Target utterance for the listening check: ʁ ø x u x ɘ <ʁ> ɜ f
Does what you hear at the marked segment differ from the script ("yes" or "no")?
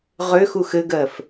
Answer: yes